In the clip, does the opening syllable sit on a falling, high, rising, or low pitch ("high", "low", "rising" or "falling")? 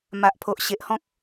low